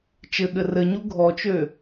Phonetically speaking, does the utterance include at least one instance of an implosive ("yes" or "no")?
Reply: yes